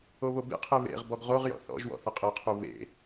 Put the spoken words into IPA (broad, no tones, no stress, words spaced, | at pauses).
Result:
oβobḛqʰe βḛʁbɔɡ ʁoʁjɔ̰ θɔ̰ʒwɔ̰ θəqʼɯqʰu βḛ